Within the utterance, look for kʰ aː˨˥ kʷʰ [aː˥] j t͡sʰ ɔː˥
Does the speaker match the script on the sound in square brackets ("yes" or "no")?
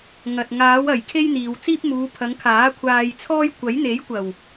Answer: no